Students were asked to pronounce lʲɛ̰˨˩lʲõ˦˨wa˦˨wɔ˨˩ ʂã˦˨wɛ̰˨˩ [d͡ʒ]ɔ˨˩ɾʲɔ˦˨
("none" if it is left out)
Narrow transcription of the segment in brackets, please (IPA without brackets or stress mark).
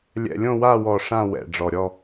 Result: ɖ͡ʐ